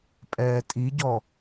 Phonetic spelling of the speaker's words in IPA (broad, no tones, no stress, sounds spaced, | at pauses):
pʼ ɛː tʼ i ɟ ɔ